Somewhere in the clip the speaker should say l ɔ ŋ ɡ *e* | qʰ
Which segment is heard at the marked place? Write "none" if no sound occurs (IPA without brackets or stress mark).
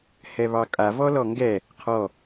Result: ɛ